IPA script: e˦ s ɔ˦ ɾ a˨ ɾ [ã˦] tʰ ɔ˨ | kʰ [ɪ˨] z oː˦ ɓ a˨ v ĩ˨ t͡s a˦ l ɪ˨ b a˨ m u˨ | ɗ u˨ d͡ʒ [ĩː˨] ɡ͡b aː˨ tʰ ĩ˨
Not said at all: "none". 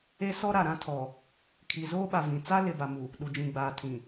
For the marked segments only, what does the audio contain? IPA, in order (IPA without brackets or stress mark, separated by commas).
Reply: ã˦, i˨, ĩ˨